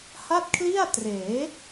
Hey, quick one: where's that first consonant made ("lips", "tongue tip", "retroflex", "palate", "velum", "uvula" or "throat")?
throat